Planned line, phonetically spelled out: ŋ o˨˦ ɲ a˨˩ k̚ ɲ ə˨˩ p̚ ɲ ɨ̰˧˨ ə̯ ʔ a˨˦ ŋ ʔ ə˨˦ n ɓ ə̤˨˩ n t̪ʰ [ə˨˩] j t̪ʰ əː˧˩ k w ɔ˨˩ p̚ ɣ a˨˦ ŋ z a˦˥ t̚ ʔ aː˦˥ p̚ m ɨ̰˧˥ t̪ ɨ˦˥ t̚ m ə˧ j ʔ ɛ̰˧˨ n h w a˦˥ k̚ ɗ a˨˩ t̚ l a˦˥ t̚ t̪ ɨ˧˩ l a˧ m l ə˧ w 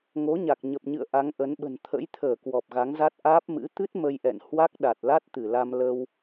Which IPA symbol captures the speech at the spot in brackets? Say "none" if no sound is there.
ə̰˧˥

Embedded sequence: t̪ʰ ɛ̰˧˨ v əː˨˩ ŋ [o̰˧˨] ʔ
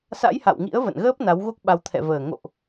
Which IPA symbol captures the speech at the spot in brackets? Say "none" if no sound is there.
o̰˧˨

